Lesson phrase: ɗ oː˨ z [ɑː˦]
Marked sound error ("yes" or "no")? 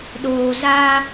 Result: yes